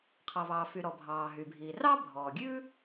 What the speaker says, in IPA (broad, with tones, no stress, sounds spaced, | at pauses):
qʰ ɑ˩ v ɑː˩ f y˩ ɾ ɔ˩ bʱ ɑː˩ ɦ y˩ bʱ iː˩ r ɑ˥ bʱ ɔː˩ ɡʲ ʉː˥